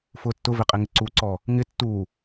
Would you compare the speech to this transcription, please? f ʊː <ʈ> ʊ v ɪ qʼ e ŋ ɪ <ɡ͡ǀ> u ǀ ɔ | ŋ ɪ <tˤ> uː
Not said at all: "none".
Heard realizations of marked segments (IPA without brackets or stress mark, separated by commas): tː, ǀ, tː